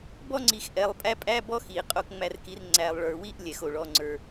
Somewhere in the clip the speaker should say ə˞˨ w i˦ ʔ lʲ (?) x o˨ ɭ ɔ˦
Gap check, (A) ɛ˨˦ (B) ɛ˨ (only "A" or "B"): B